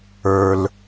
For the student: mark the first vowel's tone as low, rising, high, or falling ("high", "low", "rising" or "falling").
low